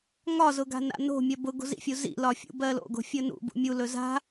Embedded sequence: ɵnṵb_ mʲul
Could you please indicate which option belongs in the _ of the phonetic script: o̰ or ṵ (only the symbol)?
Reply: ṵ